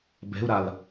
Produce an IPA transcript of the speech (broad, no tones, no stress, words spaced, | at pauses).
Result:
bɛ̤u̯ɾal